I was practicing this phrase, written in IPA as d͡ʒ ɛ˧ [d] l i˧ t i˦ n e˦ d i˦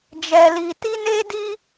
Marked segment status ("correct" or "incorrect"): incorrect